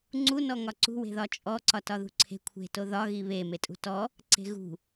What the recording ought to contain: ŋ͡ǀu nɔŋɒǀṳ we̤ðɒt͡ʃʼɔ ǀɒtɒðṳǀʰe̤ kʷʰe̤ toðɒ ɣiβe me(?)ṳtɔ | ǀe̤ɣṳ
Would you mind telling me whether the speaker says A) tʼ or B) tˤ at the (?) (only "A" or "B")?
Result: A